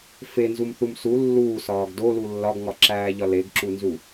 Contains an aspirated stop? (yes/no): no